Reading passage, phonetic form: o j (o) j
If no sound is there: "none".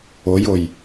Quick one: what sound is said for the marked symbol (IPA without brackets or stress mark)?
o